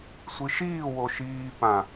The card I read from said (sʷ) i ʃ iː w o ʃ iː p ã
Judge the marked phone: correct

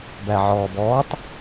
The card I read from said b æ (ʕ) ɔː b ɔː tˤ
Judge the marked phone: correct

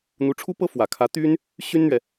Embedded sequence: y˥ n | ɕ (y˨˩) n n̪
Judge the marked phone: incorrect: y˥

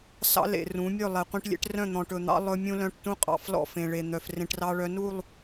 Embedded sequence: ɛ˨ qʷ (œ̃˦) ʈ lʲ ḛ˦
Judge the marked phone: incorrect: ɛ̃˦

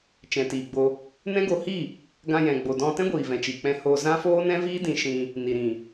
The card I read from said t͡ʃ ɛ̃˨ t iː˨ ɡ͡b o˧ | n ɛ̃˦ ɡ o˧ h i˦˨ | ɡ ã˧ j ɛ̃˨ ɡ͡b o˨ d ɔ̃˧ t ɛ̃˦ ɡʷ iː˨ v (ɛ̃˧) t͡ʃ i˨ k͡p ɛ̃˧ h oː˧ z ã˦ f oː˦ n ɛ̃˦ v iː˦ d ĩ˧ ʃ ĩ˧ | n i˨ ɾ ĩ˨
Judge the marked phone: incorrect: ɛ̃˨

